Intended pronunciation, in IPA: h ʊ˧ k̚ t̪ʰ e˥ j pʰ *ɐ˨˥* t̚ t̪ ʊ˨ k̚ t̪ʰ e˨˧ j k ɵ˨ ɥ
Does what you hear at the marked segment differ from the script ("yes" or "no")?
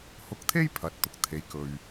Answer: no